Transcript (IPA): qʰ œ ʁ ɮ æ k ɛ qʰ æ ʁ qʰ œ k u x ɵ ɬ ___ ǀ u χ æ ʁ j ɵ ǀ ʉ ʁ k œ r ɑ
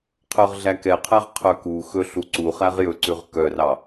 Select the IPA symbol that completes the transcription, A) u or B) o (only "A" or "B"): A